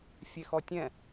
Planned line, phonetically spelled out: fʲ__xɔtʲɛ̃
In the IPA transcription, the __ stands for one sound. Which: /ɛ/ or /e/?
e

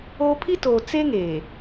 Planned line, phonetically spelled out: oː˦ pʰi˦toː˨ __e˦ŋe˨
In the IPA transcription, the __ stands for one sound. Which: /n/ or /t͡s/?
t͡s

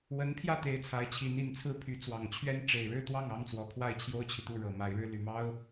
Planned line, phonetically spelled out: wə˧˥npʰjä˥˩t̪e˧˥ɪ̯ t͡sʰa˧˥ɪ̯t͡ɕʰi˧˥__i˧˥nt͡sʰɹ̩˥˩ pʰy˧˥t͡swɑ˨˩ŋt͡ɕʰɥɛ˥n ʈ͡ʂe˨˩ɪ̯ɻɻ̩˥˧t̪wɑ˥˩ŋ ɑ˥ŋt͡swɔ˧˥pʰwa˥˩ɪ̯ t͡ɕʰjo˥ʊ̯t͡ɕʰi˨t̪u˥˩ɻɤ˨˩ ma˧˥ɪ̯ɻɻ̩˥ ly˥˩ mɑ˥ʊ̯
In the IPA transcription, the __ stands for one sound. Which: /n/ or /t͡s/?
n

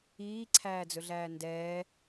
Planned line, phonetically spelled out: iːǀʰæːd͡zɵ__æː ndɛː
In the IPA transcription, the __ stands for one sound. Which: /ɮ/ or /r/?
ɮ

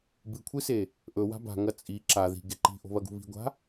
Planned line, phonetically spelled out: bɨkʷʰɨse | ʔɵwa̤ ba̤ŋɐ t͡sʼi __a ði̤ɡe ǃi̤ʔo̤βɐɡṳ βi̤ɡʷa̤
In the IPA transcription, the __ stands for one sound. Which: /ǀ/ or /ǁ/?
ǁ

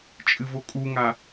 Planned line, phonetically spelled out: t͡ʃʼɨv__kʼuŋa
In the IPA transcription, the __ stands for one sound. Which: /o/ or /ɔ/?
o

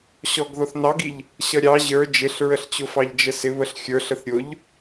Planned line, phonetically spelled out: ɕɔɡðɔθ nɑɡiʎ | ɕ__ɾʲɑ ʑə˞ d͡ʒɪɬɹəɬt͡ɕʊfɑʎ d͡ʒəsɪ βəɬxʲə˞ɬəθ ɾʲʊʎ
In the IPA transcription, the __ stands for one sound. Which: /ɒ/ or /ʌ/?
ʌ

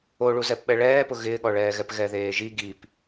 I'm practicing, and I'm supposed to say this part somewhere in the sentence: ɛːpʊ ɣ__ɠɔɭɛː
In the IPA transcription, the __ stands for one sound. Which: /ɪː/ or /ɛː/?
ɪː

